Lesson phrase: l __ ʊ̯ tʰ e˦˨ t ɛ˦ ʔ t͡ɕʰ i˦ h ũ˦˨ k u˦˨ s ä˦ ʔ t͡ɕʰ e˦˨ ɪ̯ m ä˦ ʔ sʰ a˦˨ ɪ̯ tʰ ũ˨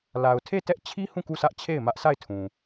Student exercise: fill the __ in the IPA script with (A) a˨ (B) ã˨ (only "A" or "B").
A